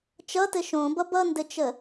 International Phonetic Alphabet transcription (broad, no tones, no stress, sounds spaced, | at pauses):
t͡ʃ ʌ t ɘ ʃ õ b ʌ b ʌ n d ɘ t͡ʃ ə